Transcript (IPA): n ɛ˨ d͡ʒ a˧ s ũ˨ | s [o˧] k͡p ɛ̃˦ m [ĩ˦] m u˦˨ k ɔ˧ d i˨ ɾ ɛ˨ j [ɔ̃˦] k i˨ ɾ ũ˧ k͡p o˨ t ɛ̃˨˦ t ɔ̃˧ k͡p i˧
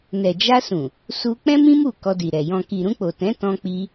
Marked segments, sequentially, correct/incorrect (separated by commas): incorrect, correct, incorrect